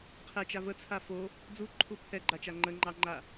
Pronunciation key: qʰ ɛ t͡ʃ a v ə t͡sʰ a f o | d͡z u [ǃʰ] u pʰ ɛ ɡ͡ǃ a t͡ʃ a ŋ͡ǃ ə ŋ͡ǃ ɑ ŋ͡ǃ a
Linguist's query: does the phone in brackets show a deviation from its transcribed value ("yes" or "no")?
no